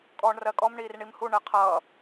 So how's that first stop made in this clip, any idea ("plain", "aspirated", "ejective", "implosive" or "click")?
ejective